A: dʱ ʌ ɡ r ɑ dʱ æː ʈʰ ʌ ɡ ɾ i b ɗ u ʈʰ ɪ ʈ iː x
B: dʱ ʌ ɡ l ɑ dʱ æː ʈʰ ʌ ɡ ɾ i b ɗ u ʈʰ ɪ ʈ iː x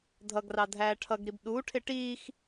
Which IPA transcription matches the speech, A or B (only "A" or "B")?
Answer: A